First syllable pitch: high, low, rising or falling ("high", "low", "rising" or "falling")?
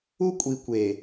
high